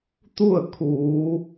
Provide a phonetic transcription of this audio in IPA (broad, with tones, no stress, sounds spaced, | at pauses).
t̪ u˥˨ ə̯ kʰ uː˩˧